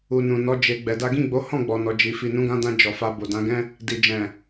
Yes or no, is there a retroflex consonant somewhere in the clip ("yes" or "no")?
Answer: no